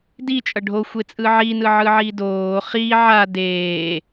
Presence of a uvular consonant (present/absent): present